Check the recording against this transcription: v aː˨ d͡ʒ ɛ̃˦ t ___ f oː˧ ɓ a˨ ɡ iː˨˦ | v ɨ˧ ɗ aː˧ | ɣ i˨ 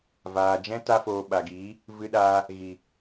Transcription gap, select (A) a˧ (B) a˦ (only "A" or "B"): B